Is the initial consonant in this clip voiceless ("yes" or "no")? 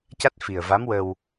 yes